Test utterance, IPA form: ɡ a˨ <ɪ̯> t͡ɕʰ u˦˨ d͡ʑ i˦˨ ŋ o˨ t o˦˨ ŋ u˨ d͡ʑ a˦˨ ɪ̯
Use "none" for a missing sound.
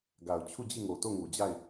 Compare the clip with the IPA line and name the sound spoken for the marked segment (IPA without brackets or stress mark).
ʊ̯